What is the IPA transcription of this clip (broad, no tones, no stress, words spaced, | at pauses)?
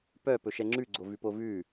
pœ pɵʃɛŋ͡ǁʉ ɡ͡ǀovʉpovʉ